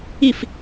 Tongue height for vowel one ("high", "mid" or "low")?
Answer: high